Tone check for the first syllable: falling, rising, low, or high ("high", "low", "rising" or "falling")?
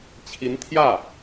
rising